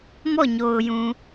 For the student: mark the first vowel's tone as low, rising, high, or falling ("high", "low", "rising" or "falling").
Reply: falling